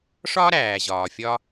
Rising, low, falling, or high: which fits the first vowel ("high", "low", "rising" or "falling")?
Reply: high